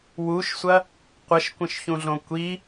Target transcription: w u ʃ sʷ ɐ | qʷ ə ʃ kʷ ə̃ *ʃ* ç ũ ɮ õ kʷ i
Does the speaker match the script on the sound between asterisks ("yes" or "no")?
yes